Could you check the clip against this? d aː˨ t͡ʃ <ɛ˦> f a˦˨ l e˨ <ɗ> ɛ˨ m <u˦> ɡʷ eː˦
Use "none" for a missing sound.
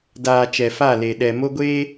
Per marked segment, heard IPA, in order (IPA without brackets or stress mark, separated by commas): ɛ˨, ɗ, o˦